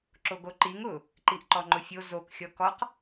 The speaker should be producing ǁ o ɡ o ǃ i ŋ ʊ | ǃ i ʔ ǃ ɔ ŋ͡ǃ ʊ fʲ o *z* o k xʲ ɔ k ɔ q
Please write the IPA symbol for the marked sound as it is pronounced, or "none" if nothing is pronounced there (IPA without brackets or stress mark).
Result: z